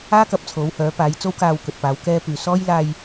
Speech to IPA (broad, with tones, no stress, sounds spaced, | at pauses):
aː˥ k ɐ˨˥ p̚ t͡sʰ o˨˥ w h œː˨˥ p aː˨˥ j t͡s o˥ w k aː˧ w k ɵ˨ t̚ p aː˨˧ w k ɛː˥ p yː˨ s ɔː˥ j l aː˧ j